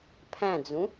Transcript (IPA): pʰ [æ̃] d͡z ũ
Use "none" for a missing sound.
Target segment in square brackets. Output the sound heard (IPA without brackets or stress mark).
æ̃